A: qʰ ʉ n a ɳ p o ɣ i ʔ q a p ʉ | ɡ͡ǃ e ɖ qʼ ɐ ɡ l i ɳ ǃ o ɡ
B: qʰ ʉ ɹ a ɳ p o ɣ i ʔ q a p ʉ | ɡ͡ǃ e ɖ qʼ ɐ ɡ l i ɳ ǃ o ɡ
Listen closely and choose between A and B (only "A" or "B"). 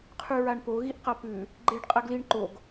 B